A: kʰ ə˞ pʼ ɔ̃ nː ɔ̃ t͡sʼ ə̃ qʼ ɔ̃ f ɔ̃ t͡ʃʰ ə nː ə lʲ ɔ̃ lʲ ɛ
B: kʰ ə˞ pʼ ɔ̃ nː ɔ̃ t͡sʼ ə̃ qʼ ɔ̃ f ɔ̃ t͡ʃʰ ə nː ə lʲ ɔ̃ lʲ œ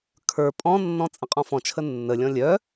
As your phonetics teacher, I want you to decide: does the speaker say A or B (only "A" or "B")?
B